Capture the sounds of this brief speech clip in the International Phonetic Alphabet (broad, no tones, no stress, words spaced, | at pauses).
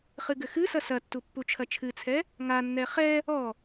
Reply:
χɨɡɘxɨsɐ sɐtːu pːut͡ʃʰɐt͡ʃʰɨt͡sʰɛ | ŋanːɛ χɛ | ɔ